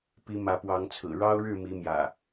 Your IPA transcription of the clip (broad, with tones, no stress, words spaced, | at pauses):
pi˨˦mä˨˦pwɑ˨˦ŋt͡sʰɹ̩˨˩ ɻɑ˦ʊ̯ɻɻ̩˥˨mi˨˦mjä̰˨˩